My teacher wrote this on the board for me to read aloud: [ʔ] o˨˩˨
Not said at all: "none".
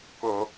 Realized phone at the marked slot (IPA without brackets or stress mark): k